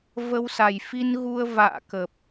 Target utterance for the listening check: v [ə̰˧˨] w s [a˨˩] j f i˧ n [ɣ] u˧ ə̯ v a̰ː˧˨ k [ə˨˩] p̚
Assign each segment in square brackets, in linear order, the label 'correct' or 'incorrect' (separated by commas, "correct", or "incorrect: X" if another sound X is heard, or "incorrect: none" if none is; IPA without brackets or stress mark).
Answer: incorrect: ə˧, correct, correct, correct